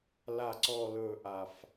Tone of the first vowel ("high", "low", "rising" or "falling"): low